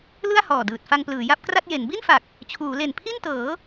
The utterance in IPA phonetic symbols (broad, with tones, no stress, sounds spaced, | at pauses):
l ɯ˥˩ a̯ h ɔː˨˩ d ɯː˨˩ t̚ f a˧ ŋ p l ɯː˩˦ j a˦˥ p̚ k r a˥˩ t̚ j e˩˦ n b i˥˩ n f a˨˩ k̚ | t͡ɕʰ uː˩˦ l e˨˩ n pʰ i˥˩ n t ɤː˩˦